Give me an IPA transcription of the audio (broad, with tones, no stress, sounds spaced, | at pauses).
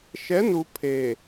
ʃ ɛ˨˦ n u˨ pʰ e˨